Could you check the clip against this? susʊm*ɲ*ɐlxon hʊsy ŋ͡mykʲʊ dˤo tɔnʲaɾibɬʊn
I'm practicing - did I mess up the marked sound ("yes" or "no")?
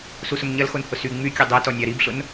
no